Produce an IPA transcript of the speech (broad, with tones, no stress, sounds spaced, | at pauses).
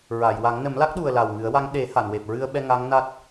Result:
ɹ a˨˩˨ j w a˨˩˦ ŋ n ə˨˩˦ m l a˦˥ k̚ ɗ u˨˩ ə̯ l a˨˩ w ŋ ɨ˨˩˦ ə̯ w a˧˥ ŋ ɗ e˨˩˦ h a˨˩˨ n w e˨˩ p̚ ɹ ɨ˧ ə̯ ɓ ɛ˧ ŋ a˧˥ ŋ n a˦˥ t̚